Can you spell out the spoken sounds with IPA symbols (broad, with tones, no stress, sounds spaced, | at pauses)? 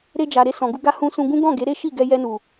ɾ e˧ d͡ʒ a˨ ɾ e˧ s ɔ̃˨ ɡ u˧ ɡ a˧ h ũ˧ s ũ˧ ɡ ũ˦ ɡ ɔ̃˦˨ ɡ e˨˦ ɾ e˦ ʃ i˦˨ ɡ ɛ˧ j ɛ˧ n u˨